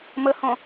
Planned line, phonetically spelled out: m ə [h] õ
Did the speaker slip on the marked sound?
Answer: no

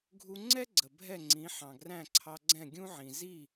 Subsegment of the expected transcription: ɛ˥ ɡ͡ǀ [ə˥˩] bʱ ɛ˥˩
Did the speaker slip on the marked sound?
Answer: yes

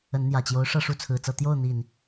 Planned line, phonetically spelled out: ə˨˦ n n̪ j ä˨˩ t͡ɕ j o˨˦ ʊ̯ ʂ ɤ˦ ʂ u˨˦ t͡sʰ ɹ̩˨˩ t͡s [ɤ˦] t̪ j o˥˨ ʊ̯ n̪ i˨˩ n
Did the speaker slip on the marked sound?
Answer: yes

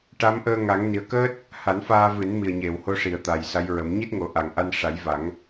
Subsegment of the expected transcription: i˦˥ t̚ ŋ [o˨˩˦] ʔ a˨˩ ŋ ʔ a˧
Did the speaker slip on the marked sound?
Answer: no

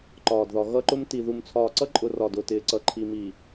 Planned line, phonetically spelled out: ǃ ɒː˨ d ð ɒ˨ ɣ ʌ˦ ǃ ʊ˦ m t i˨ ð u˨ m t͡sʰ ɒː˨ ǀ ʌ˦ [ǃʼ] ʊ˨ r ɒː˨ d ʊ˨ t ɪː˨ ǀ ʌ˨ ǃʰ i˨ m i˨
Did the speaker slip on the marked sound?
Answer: no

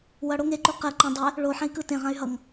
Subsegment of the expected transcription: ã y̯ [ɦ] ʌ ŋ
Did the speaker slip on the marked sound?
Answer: no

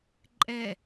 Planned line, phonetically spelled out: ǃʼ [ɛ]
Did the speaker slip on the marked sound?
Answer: no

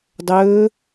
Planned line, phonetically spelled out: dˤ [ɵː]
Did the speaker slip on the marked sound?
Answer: no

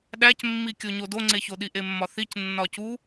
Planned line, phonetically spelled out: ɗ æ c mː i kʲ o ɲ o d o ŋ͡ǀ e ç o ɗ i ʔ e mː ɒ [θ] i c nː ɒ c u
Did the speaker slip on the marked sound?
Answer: no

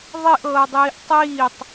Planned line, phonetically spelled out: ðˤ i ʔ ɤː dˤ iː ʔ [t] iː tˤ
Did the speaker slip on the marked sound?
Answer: yes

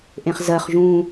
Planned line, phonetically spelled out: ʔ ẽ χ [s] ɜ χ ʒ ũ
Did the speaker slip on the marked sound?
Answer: yes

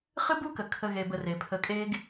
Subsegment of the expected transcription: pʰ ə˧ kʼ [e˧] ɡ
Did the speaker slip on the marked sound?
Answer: yes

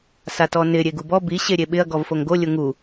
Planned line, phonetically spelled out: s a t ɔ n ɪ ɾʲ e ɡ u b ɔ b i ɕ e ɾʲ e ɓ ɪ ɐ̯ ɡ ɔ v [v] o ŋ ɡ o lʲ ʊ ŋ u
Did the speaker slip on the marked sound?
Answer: yes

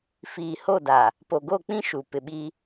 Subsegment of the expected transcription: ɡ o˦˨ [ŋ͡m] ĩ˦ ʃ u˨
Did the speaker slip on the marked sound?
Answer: yes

